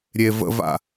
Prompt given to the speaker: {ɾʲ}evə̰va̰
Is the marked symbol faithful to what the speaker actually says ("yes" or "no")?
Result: yes